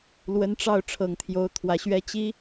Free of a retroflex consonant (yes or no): no